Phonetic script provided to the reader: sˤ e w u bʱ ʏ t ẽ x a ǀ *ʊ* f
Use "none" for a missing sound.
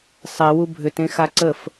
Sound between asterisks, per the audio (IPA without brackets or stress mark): ə